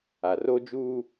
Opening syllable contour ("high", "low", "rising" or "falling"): low